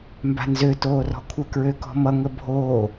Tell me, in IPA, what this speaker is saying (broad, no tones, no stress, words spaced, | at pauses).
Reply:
mba̤nzø toːrɔ̤kʷʰə kɹøkɔ̤mʌ ŋəbʱoː